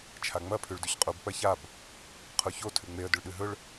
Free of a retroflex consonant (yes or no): no